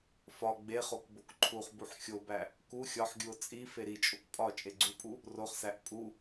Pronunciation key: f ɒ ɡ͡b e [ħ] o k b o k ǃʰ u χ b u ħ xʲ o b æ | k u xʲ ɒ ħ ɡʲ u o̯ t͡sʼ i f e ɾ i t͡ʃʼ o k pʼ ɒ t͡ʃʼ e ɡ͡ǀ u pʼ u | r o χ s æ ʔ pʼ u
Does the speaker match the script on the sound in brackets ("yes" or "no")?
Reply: no